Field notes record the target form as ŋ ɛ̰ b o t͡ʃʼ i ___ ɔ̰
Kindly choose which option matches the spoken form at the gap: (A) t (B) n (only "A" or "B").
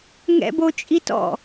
A